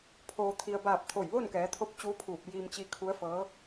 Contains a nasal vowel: no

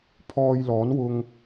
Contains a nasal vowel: no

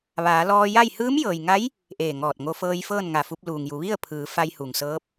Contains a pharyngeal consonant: no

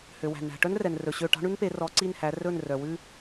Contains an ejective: no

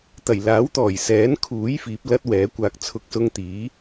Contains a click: no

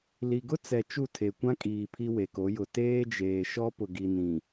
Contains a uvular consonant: no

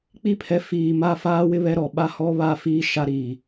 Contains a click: no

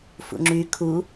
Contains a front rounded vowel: yes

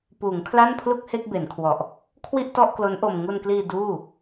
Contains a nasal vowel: no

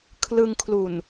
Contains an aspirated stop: yes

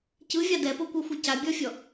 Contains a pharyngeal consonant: no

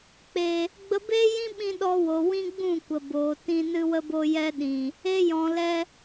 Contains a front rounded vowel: no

